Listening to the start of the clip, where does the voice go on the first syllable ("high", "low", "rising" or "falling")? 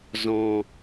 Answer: low